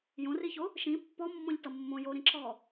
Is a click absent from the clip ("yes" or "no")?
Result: no